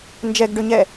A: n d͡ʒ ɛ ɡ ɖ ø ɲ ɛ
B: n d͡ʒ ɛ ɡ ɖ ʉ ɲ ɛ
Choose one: A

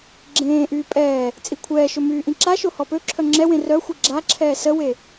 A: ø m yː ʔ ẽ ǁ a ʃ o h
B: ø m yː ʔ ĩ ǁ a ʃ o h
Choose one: B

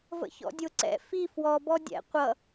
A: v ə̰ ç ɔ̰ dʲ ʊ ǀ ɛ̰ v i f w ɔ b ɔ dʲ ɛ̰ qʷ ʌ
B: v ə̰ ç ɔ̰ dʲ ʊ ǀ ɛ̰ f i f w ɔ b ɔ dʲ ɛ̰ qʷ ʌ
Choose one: B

